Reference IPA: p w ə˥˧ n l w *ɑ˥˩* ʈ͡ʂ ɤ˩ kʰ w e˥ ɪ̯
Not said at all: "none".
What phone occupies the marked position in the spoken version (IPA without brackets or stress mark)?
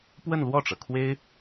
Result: ɔ˥˩